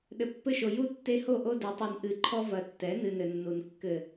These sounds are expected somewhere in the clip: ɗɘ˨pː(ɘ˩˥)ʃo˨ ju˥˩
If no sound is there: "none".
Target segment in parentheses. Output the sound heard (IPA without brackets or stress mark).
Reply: ɘ˥˩